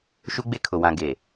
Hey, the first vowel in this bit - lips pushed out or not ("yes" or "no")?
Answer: yes